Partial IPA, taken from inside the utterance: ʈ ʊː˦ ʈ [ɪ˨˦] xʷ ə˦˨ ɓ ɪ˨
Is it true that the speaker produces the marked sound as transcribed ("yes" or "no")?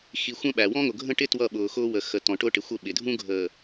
no